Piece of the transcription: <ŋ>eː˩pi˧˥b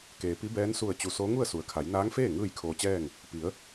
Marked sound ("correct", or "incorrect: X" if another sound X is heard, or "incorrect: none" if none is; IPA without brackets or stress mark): incorrect: k